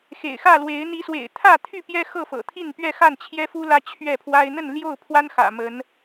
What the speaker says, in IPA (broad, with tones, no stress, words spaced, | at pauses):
xḛ˨˩ɪ̯ xä˥˨lwe˨˦ɪ̯ n̪i˨˦swḛ˨˩ɪ̯t̪ʰä˥˨t̪ʰy˥˨ pjɛ˦xɤ˥˨fɤ̰˨˩t̪ʰi˥˨n pɥɛ˥˨xa˥˨nt͡ɕʰjɛ˦fu˦ lä˦t͡ɕʰɥɛ˥˨pʰwa˦ɪ̯ n̪ə˥˨nljo˥˨ʊ̯pʰwa˦n xä̰˨˩mə˨˦n